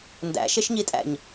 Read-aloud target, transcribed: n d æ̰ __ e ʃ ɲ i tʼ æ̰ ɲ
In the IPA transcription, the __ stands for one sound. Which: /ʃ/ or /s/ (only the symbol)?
ʃ